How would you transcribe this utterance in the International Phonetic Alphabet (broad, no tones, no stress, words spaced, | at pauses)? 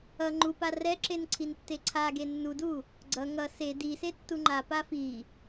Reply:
ʌ ŋ͡ǃupa rɛǁen ǀʰintːeǀʰaɡe nːudu | ɡ͡ǀʌ ŋʌ se dise tːuŋ͡ǃapa fi